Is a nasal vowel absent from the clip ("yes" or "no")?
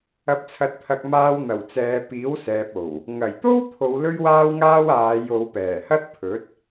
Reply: yes